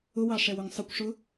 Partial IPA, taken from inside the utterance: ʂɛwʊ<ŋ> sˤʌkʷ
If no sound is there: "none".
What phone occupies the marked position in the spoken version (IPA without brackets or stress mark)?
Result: ŋ